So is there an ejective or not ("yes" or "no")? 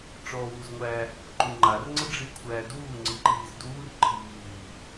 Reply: no